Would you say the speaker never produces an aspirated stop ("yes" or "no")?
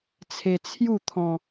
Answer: no